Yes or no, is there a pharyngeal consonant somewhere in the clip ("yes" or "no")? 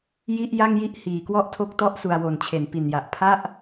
no